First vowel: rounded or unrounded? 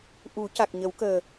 rounded